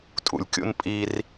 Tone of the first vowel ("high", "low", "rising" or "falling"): low